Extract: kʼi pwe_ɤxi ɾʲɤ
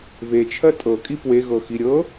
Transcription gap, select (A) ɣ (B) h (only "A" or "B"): A